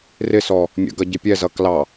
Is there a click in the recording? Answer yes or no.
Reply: no